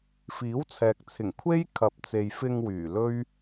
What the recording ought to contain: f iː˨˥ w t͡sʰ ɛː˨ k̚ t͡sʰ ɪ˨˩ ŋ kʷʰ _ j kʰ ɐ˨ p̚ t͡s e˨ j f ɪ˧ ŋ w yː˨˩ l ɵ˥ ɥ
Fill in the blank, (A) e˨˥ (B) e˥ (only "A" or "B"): B